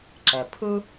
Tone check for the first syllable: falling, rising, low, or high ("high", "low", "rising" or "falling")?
low